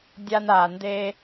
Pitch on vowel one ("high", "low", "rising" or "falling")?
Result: high